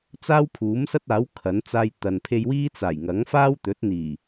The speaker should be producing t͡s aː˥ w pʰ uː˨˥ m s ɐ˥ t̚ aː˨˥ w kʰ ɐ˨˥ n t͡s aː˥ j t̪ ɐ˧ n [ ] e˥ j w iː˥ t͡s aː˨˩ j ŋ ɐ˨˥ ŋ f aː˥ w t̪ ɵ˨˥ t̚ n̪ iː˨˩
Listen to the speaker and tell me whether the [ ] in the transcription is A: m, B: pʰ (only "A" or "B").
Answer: B